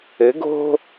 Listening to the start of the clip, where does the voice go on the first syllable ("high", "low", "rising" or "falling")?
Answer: rising